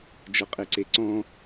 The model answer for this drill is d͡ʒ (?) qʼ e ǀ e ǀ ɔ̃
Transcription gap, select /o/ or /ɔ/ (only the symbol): ɔ